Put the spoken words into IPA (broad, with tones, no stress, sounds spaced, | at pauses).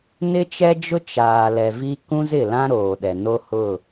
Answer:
n ɪ˦ t͡ʃ ɛ˦ d͡ʒ ʊ˦ t͡ʃ aː˨ l ɛ˨ v i˦ k ũ˦ z ɪ˦˨ l ã˦ ɾ oː˨ ɗ ɛ˨ n o˦ h ʊ˦˨